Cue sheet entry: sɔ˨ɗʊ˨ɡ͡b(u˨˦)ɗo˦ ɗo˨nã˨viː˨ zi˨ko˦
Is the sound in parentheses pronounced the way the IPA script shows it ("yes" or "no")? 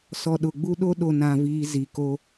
no